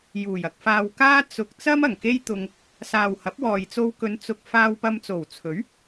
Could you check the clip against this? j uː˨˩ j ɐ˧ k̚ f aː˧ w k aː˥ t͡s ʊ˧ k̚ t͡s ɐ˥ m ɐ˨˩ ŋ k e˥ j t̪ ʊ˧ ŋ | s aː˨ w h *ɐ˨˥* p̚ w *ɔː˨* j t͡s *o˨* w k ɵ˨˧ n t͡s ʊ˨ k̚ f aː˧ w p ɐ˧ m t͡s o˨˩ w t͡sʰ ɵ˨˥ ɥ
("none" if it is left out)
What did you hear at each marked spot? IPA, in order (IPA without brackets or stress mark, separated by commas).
ɐ˨˥, ɔː˨, o˧